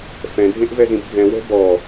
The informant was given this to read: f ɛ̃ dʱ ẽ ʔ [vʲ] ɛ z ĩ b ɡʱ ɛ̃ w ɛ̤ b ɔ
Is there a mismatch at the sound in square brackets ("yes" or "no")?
yes